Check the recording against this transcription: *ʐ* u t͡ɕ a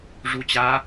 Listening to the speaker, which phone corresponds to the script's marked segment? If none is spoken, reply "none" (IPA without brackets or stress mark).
ʐ